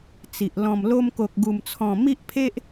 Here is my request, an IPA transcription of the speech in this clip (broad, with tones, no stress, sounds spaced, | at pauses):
t͡s i˨ ʔ l ɔ̃˨˩ m l o˧ m k o˨ k̚ ɡ u˨˩ m t͡sʰ ɔ̃˨˩ m i˦ ʔ pʰ e˦ ʔ